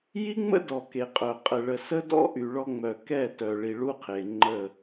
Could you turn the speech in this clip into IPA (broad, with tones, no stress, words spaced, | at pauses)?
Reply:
ji˦ŋ͡mə̰˦dɔ˨ ke˨qʼœ˨ qʼə˨ɭə˨ sə˦dɔ̰˦ ʔy˨ ɭɔ˦ŋ͡mœ˨ kɛ˦˨ tœ˨ ɭi˨ ɭu˦qʰe˨ŋ͡ǃə˦˨